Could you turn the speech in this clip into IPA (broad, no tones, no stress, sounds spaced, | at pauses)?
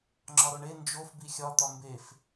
ŋ͡ǁ ɒ ɾ o ɳ e n d͡ʒ o f b i xʲ ɒ t̪ ɒ m b e f